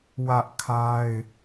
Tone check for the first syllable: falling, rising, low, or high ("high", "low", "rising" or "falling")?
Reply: high